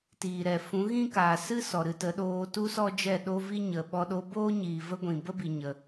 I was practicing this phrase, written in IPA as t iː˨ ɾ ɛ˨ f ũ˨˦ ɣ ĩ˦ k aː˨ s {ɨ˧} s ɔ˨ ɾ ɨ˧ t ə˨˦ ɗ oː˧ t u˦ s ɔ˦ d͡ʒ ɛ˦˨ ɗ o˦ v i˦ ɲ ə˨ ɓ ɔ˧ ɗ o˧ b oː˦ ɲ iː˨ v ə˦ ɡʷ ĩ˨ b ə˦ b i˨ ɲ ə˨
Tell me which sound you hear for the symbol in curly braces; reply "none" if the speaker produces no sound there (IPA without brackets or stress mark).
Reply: ɨ˦